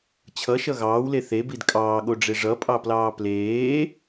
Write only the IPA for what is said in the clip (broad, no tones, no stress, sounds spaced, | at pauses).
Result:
t͡ɕʰ ʌ ʃ ʌ ɣ ɑː w l e θ e b i d kʼ ɑː ɠ o ɖ͡ʐ e ʐ ʌ pʼ ɑ p l ɑː p l eː